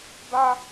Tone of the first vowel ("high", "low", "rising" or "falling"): high